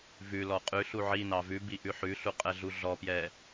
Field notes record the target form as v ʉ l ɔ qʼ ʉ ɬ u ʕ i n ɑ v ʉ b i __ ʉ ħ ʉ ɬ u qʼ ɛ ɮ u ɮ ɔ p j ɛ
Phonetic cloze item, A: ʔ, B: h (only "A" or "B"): A